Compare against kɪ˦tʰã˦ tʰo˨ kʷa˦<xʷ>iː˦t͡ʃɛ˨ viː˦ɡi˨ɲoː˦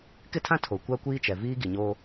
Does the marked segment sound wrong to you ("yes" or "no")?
yes